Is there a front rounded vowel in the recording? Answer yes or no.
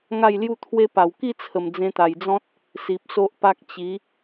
no